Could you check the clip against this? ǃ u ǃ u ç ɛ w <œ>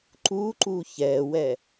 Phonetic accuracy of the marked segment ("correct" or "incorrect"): incorrect